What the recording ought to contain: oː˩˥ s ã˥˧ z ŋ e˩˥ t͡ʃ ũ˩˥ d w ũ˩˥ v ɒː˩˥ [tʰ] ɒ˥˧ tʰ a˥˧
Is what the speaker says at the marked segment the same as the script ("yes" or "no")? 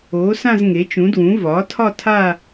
yes